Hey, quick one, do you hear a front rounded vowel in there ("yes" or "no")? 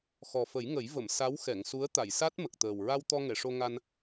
no